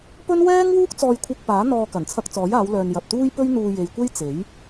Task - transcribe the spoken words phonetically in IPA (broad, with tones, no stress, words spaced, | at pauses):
pɵ˥n wɛː˥ŋwuː˥k̚ t͡sɔː˧jkʷʰɐ˧k̚paː˨˥ n̪ɔː˧ kɐ˨˩nt͡sʰɐ˧k̚ t͡sɔː˨˥jaː˨˧wlœː˨n jɐ˨p̚t̪uː˥j pɵ˥ɥn̪uː˧ je˨jkʷe˥j t͡se˨˥j